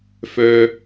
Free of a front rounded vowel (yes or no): no